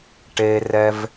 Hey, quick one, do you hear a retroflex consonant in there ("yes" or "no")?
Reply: yes